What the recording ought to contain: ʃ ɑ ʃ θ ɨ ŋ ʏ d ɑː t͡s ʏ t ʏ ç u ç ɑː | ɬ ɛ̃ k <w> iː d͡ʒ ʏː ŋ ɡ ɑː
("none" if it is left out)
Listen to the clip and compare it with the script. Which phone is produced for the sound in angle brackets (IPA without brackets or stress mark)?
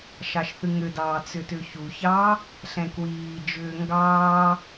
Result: w